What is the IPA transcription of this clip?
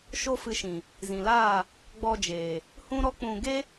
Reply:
ʃo˦fɨ˧ʃĩ˨ | zĩ˨laː˦˨ | ɡ͡bɔ˧d͡ʒeː˨ | hũ˦ɾɔ˦k͡pũ˧ ɡe˦

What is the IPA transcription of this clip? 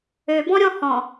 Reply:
øbɔ̃ɾʲɔ̃ hɔ̃

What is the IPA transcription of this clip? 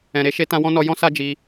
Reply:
ɛ̃˨ɾe˧ʃe˧ tã˧wɔ̃˦nɔ˧ jɔ̃˦ sa˦d͡ʒi˧

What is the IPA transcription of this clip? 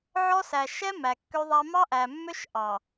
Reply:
ʕɔ˦sæ˨ ʃɛ˦ mæ˨kːø˦ðˤæ˦ mɑ˦ʔæ˨mːø˦ʃ ʔɑ˨

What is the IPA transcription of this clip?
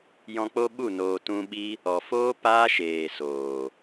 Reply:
jɔ̃˧k͡po˦ɓu˦˨ noː˨tũ˧ɓi˦ | ɔ˨foː˦ paː˦ʃeː˨ soː˨

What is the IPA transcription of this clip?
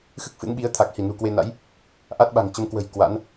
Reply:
xɨ˦˥k̚fɨ̰˧˥nɓi˨˦ə̯ t̪ʰa˨˩k̚hi˧˩nṳ˨˩ kwe˧na̰˧˥j | ʔa˦˥t̚ɓa̤˨˩ŋt͡ɕə˨˦mkwə̤˨˩j kwa̰˧˥n

